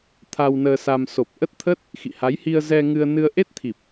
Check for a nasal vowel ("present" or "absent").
absent